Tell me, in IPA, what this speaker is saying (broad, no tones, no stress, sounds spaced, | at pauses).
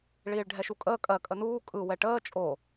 ɭ iː ɭ ɖʱ ɛ ʃ u kʼ əː kʼ ɜ kʼ ə n uː kʼ ɯ w ɛ ʈ əː t͡ʃʼ o